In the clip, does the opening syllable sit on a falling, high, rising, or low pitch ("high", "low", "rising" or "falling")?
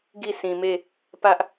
falling